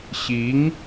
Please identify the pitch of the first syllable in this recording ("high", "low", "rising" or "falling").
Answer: rising